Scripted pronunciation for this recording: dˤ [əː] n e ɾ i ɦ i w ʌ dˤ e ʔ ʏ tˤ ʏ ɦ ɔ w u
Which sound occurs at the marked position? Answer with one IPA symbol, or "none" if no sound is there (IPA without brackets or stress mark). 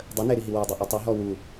ə